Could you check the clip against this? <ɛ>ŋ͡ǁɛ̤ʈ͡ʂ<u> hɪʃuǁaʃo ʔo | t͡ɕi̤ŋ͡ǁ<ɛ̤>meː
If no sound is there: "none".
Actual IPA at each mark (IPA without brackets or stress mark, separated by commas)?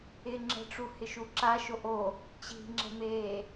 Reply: ɪ, u, ɛ̤